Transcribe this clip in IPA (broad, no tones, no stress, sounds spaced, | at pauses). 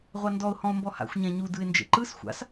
ʁʷ a n d ɔ ʊ̯ h ɔ̃ ʊ̯ m b ɔ h a̰ xʷ ɲ ã ɲ u d ɯ ɪ̯ n d͡ʒ ḛ ǃ ɯ s xʷ a̰ s